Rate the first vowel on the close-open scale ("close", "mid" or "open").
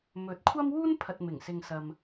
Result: mid